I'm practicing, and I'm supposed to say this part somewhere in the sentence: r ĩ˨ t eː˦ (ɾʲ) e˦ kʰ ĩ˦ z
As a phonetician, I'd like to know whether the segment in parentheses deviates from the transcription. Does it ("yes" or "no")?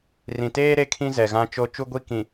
yes